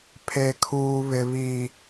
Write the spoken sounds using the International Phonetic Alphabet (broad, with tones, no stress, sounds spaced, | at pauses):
pʰ e˨ kʰ uː˨ β ɪ˨ β i˨